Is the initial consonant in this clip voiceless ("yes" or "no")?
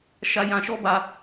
yes